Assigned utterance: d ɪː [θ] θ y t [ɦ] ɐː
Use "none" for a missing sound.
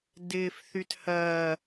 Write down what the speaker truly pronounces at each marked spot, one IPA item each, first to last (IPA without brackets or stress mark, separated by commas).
f, h